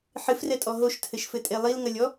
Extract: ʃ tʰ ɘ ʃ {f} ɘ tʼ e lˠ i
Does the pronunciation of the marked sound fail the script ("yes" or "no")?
no